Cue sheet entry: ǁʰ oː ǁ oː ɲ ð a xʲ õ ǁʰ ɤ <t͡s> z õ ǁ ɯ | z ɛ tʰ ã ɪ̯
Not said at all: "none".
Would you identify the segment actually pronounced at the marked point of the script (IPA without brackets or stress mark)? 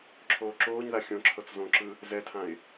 t͡s